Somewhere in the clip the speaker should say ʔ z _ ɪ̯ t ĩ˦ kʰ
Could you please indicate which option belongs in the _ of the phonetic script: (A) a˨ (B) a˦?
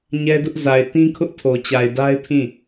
A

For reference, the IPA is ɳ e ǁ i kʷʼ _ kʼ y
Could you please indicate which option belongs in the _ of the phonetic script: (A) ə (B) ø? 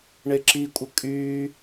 A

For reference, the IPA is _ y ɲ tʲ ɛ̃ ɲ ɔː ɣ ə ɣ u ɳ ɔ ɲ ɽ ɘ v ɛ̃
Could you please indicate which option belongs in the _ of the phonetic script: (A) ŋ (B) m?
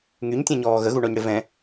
A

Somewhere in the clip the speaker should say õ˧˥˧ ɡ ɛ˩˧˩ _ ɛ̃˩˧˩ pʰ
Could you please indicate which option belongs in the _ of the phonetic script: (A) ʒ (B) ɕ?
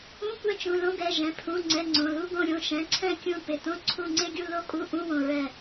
A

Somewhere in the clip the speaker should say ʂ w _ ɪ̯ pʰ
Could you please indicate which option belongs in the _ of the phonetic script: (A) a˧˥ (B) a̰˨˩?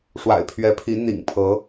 B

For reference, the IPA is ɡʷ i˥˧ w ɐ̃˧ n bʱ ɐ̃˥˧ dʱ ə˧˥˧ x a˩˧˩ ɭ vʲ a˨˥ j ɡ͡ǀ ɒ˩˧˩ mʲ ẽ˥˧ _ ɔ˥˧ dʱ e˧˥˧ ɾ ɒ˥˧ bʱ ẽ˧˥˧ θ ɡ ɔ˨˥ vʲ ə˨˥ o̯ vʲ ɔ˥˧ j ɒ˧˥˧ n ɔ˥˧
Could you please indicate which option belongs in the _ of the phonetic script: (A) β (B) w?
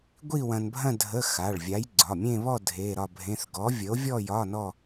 A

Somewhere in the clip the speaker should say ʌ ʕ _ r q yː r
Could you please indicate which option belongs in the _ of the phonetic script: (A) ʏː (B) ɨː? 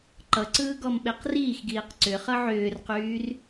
A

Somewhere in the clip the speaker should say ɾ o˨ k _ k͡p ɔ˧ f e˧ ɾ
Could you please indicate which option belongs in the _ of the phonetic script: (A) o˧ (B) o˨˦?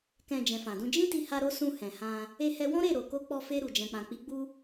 A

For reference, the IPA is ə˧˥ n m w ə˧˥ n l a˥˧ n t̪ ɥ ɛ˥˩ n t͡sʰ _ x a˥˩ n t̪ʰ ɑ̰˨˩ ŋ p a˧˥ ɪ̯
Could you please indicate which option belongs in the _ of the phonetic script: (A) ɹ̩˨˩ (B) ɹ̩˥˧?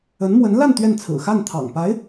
A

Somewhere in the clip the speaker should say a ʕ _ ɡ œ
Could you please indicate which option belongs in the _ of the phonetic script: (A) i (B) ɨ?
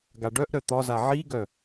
A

